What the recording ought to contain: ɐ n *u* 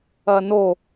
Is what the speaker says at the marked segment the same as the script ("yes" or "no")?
no